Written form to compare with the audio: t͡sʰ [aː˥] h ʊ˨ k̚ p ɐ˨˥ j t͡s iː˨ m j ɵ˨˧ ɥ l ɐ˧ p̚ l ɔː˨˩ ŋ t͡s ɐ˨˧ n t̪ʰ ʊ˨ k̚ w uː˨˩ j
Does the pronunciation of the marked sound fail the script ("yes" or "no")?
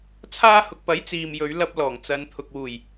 no